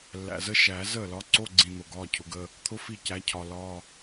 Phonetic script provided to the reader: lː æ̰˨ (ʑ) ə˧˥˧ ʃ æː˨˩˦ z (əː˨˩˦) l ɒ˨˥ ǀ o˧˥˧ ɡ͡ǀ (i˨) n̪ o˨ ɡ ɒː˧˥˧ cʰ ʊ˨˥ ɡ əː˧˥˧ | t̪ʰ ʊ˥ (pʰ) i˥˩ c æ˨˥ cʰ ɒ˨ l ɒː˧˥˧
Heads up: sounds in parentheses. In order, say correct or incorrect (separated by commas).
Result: incorrect, incorrect, incorrect, incorrect